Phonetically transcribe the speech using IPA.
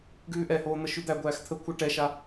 ɡ ʉː ʔ ɛ h oː n̪ ə ʃ ʉ d̪ æ ɡʷ æː x t̪ʰ ə kʷʰ ə ʈ ɛ ʃ a

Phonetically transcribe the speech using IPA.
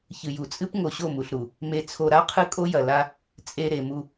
ç ɨ˨ j u˨ t͡sʼ ɨ˦ p ŋ o˨ ɕ o˦˨ m u˨ ɬ ɾ u˨ | m e˨ t͡sʰ o˨ ɾ a˦ qʰ ɨ˦ kʼ o˦ j ɐ˨ l a˦ | t͡sʼ e˨ ɾ e˨ m u˦

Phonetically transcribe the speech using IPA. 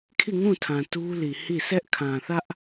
kʰ i˦˨ ŋ ũ˦˨ tʰ ã˨ t u˦ l i˨ h i˦˨ s ɛ˦ ʔ kʰ ã˨ θ ä˦ ʔ

